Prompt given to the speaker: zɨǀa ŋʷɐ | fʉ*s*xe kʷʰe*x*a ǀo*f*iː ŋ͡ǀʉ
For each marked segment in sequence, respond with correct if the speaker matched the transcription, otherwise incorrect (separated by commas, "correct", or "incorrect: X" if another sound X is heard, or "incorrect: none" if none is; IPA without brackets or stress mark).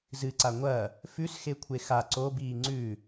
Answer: correct, correct, incorrect: b